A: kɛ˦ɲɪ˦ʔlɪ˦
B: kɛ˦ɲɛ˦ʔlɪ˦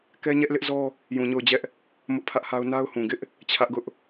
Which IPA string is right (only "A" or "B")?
B